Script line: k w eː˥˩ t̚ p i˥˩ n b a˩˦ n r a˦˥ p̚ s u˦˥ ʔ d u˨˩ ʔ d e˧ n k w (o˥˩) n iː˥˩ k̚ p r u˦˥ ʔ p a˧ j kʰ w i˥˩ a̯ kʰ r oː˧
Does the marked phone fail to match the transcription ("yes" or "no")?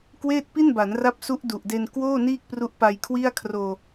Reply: yes